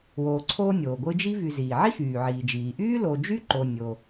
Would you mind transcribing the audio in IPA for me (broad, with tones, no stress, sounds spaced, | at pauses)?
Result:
w oː˨ ǀʰ oː˦ nʲ oː˩ ɡʷ ɨ˦ d͡ʒ i˥ v y˨ z iː˩ ʕ i˥ x yː˩ ʕ iː˩ d͡ʒ iː˩ ʔ yː˥ l o˨ d͡ʒ y˥ ǃ o˨ nʲ o˨